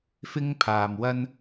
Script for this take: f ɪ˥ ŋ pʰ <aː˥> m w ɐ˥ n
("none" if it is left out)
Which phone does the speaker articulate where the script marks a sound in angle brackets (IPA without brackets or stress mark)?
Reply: aː˧